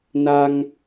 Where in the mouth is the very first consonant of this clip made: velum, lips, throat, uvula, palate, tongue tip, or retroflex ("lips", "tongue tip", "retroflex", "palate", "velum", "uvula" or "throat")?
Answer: tongue tip